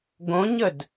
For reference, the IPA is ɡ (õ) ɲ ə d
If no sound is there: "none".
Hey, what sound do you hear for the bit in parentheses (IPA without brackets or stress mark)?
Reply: õ